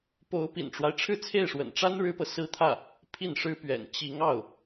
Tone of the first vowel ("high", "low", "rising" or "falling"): rising